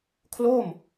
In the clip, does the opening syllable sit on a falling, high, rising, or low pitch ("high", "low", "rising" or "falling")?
falling